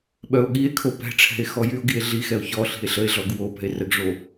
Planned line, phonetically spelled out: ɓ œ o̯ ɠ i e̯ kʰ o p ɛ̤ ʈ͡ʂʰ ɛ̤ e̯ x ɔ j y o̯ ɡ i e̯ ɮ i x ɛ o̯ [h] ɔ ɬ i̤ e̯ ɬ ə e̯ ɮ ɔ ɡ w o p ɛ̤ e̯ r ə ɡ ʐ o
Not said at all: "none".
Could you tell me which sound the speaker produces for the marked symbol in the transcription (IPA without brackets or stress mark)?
ç